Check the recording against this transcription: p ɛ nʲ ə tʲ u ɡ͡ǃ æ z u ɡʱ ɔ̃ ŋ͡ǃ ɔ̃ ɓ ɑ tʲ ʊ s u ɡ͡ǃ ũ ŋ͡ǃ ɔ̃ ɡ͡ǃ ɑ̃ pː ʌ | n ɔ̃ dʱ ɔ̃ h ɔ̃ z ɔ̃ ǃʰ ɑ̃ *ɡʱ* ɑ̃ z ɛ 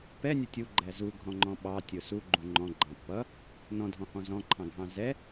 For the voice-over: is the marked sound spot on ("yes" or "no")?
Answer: yes